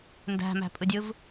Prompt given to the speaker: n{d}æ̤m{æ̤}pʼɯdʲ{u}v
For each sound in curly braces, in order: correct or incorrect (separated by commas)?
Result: correct, correct, incorrect